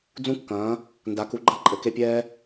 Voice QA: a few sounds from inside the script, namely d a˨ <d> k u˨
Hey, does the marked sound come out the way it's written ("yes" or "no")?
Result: no